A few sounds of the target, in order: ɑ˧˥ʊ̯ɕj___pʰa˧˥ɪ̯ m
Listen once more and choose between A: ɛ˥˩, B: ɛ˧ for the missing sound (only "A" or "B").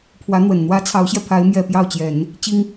B